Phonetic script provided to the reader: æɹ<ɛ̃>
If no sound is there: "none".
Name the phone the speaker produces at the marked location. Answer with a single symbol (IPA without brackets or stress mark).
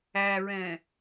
ɛ̃